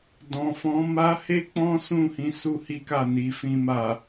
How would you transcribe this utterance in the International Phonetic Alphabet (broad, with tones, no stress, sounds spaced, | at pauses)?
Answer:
d ɔ̃˨ f ɔ̃˨˦ m a˧ h e˦ k͡p ɔ̃˦ s ũ˦˨ h ĩ˧ s u˦ h i˦ k a˦˨ n i˧ f ĩ˧ m a˨